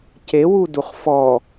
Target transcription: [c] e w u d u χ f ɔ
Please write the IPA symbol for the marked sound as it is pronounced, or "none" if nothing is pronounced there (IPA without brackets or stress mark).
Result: c